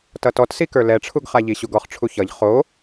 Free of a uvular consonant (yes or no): no